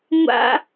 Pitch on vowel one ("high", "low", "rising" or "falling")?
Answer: high